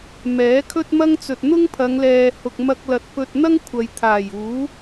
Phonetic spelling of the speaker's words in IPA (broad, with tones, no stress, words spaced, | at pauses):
mɛː˨˥kʰɵ˥t̚mɐ˥ŋ t͡sɵ˨t̚n̪ʊ˥ŋpʰɐ˨˧ŋlɛː˨ hʊ˨k̚mɐ˧k̚lɐ˨t̚ pɵ˧t̚n̪ɐ˥ŋ kʷʰɐ˨jt̪ʰaː˨˩juː˨˥